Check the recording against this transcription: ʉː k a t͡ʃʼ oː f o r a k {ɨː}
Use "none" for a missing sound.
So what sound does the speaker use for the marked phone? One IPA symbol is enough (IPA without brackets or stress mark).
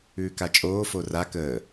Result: əː